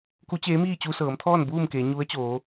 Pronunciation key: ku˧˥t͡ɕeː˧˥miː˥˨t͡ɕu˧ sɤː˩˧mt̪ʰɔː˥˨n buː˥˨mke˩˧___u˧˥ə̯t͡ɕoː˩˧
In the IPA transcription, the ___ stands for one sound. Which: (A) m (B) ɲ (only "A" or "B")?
B